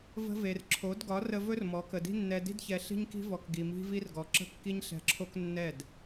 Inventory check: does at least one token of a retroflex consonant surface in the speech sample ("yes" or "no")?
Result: no